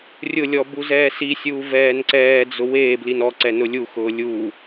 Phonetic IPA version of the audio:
rʲ ʊ lʲ ɔː b u z ɛː s i sʲ uː v ɛː n ǀ ɛː d͡z ʊ w eː b l i n ɔ ǀ ɛ n ʊ lʲ u x ʊː lʲ u

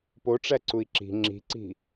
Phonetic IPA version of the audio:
p o ʈ͡ʂ æ ǀ u i̯ ǁ i̤ ŋ͡ǁ i̤ ǀ i̤

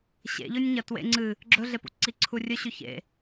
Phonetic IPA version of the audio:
ɕ ḛ ʎ ɵ nʲ ɲ ɐ t w ḛ ŋ͡ǀ ɨ | ɡ͡ǁ ɵ ɮ e p ṵ ǀ i ǀʰ u rʲ ɵ ɕ ʉ ç ḛ

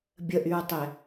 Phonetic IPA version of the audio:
bʲ ə ʔ y ɹ tˤ ɛ

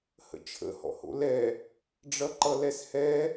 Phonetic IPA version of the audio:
h ə̰ t͡ʃʰ ə̰ h ɔ̰ h o̰ l ɛ | ɖ͡ʐ ʌ ǃ ʌ l ɛ s h ɛ

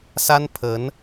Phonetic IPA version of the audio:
s a˥ n pʰ ə˧˥ n

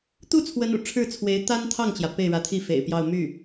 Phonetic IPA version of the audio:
t̪ u˥˩ t͡sʰ w ə˧˥ n ṵ˨˩ ʈ͡ʂʰ ɻ̩˥˩ t͡sʰ w e˧˥ ɪ̯ t̪ a˥ n t̪ʰ ɑ˥˩ ŋ t͡ɕ j ä˩ p e˥˩ ɪ̯ ɻ ä˧˥ t̪ʰ i˥˩ f ḛ˨˩ ɪ̯ p j ɑ˥˧ ʊ̯ m y˥˩

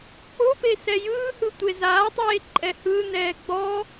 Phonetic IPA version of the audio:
k͡p o p e s ɛ j ɯː h ɯ tʷ e z aː tˤ eː ǃʼ ɛ h ɯ n ɛː ɡ͡b ɔ

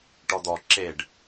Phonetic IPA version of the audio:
ʈ ɔ d̪ ɔ ǁ e ɖ

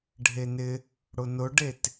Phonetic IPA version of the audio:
ɖʱ e n ɪ | ɽ ʊ n ʊ ɖ e t

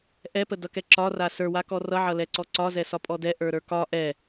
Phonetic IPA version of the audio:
ʔ ɛ p ə d ʌ k ɛ ǁ ɒ r a s ə˞ w a k ɔ r ʌ ʕ ʌ l ɛ ǀ ɔ ǀ ɒ z ɛ s ɒ pʼ ɔ d ɛ ʔ ə˞ ɾ ə˞ k ɒ ʔ ɛ

